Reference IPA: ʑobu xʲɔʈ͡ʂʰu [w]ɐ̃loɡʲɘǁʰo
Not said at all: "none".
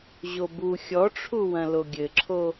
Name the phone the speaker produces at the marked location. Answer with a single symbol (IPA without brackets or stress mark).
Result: w